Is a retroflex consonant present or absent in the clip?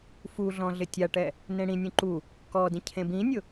present